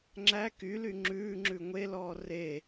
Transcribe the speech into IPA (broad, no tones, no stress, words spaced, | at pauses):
ŋ͡ǁæ kyly ŋ͡ǁʉːŋ͡ǁʉ ŋʷelɔː re